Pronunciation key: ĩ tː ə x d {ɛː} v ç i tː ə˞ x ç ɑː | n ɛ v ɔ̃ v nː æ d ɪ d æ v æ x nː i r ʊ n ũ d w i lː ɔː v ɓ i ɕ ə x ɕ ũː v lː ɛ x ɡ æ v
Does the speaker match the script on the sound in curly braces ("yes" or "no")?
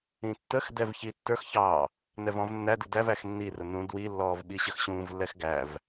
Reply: no